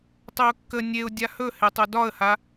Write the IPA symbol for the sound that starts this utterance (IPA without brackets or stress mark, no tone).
tˤ